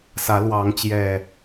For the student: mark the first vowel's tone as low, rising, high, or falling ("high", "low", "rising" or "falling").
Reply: rising